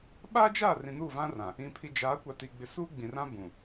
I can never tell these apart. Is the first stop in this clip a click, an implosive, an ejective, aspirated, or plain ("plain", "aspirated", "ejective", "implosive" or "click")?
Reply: implosive